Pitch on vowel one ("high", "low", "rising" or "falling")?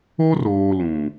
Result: high